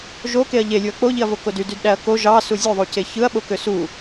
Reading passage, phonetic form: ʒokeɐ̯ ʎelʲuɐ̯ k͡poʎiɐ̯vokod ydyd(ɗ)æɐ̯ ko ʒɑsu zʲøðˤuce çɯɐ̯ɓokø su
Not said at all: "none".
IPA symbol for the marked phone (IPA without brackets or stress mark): ɗ